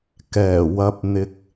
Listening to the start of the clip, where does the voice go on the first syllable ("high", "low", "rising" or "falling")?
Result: low